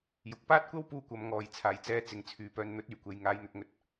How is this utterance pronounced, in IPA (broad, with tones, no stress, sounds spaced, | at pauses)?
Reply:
j ʊ˨ k̚ p aː˥ t̚ kʷ ɐ˥ w p uː˧ kʷ ɐ˨˧ m ŋ ɔː˨ j t͡sʰ aː˨˩ j t͡s ɛː˨˧ t͡s ɪ˨˧ ŋ t͡sʰ yː˨˧ p œː˧ n n̪ ɵ˨˥ t̚ yː˨˩ kʷ e˨ j ŋ aː˨˧ j n̪ ɵ˧ t̚ ŋ ɵ˧ t̚